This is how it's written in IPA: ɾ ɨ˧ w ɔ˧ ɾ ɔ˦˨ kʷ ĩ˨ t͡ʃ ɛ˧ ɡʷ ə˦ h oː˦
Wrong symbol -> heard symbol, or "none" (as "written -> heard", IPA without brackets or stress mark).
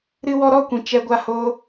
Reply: ə˦ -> a˦